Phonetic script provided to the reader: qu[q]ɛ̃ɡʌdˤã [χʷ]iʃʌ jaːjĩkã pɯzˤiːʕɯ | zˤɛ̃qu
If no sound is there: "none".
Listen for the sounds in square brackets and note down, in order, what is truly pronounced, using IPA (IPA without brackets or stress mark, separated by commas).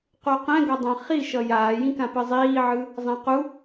q, χ